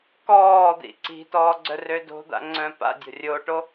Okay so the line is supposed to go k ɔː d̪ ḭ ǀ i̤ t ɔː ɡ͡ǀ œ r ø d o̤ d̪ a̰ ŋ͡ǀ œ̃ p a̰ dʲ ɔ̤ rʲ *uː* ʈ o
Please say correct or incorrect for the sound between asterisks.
incorrect